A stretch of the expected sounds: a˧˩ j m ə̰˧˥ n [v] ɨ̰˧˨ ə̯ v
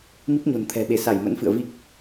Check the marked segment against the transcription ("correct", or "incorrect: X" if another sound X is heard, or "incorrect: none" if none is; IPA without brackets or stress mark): incorrect: f